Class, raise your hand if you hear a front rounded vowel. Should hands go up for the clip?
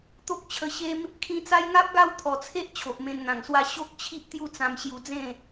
no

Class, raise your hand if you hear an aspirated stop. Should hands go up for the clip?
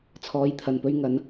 yes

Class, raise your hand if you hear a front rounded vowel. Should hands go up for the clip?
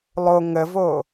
no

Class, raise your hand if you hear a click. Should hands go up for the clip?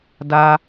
no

